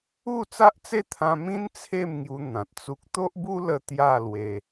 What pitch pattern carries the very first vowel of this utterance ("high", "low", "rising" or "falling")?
falling